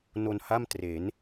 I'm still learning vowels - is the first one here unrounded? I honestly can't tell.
no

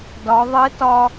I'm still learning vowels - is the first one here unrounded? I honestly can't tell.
no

